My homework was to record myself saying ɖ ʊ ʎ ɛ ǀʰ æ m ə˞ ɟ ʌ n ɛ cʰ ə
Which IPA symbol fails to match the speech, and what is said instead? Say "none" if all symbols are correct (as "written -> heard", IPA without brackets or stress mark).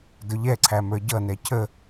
ɖ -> d